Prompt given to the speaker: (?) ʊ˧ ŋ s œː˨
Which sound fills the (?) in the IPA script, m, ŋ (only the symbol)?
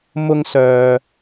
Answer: m